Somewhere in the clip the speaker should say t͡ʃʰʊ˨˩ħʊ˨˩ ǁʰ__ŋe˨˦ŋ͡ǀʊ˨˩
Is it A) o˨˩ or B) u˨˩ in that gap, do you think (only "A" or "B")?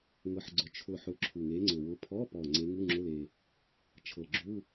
B